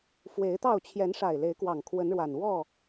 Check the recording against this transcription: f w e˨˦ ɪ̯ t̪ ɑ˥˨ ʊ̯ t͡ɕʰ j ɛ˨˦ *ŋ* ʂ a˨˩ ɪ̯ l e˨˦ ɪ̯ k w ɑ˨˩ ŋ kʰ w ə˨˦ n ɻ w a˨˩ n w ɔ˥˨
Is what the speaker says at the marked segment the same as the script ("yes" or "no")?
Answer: no